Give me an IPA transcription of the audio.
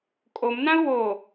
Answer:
kʼ o m n ã ʊ̯ w o

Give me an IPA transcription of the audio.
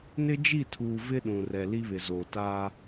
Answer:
n ɪ˦ d͡ʒ i˦˨ tʰ uː˨ v ɪ˦ ɗ ũ˨ r ɛ˨ l i˦ β ɪ˨ z oː˨ t aː˦

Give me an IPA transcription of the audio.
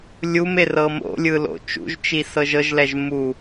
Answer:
lʲ u m e r ɤ m o̰ lʲ ɯ l o̰ t͡ʃ ṵ ʒ t͡ʃ i s ɤ ʒ ɤ ʒ l ɛ ʒ m u

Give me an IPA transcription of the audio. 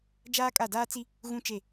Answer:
d͡ʒ aː˦ kʼ a˦˨ d aː˦ t͡s i˦ | ɣ ũ˦ t͡ʃ e˦˨

